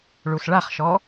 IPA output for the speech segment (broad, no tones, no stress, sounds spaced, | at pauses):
ɭ u s ɭ a χ ʃ ɔ